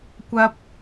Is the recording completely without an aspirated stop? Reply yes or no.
yes